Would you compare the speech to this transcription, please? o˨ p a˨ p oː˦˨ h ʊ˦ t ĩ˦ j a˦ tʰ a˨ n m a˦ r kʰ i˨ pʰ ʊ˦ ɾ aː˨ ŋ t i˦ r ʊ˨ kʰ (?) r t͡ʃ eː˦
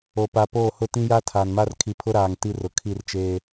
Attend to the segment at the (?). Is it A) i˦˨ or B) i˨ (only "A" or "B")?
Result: A